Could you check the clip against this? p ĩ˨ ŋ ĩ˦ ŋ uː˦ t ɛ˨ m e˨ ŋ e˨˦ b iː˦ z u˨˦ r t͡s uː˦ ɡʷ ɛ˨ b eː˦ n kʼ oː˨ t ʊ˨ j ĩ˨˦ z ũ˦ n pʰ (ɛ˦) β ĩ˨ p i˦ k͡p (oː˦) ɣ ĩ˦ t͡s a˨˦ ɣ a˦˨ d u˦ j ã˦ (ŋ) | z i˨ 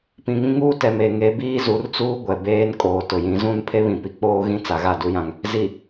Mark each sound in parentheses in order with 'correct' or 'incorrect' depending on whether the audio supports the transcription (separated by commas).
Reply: incorrect, correct, correct